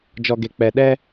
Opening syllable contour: low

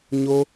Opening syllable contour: high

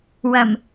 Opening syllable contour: low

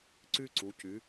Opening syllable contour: high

